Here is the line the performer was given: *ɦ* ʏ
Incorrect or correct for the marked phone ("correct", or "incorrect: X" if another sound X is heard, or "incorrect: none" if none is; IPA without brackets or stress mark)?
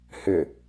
incorrect: h